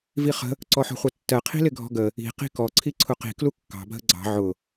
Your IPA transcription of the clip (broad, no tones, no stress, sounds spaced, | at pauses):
v i χ ə̤ | ǀ ɔ ħ ɔ̤ χʷ ʌ tː ɜ qʰ i̤ l ɪ ɡʱ ɔ̤ ɡ ə | i̤ q i̤ k ɔ ǀʰ i ǀʰ ʊ q i̤ k l u kː ɑ̤ bʱ ə ɡ͡ǀ ɑ̤ ʕ ʊ